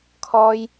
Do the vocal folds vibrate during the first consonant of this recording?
no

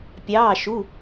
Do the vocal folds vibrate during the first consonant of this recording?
no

